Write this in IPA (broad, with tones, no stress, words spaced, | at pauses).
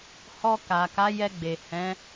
hɔ˧ ka˨ka˨˦jɛ˧ ɡ͡be˨hɛ̃˨˦